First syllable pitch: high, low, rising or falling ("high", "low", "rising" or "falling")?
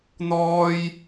high